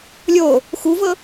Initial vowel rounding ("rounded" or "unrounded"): rounded